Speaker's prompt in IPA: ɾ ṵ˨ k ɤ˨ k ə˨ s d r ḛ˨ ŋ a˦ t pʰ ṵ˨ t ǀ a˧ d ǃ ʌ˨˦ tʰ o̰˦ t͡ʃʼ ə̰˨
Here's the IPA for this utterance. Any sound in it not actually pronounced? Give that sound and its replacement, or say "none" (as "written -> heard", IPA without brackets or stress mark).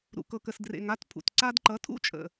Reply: o̰˦ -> ṵ˦